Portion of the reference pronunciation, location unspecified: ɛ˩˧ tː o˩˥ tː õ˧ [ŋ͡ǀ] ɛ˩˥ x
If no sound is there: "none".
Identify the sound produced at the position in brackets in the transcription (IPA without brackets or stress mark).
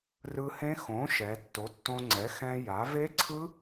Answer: ŋ͡ǀ